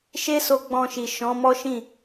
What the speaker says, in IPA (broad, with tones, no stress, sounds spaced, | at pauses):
ʃ e˦ s o˧ ɡ͡b ɔ̃˧ ʃ i˨ ʃ ɔ̃˨˦ m ɔ˦ ʃ ĩ˦˨